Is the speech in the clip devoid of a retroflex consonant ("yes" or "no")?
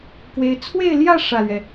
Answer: no